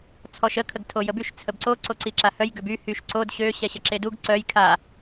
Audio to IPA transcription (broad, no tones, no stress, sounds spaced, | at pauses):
t͡sʰ ɔ ʃ ə kʰ ə ɡ tʰ o j ə b y ʃ t͡sʰ ə b ǀ o ǀ o ǀ i ǁ a h œ j ɡ ø b y h y ʃ ǀ o d ɕ ø ɕ ɛ ɕ ə ǁ e d u ɡ ǀ œ j kʰ a